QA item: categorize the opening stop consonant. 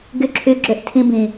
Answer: plain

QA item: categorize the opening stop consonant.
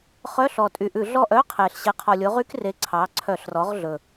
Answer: ejective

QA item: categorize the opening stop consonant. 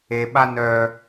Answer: implosive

